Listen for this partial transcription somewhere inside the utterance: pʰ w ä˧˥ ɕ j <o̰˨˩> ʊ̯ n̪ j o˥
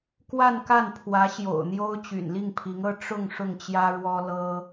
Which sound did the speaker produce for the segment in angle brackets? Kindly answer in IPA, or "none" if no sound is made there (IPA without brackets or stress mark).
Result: o̰˨˩